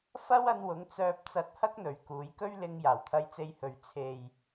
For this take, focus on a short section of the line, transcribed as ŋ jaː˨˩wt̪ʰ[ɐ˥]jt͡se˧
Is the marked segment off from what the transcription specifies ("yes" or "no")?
yes